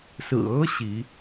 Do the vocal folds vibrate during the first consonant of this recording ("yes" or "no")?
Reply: no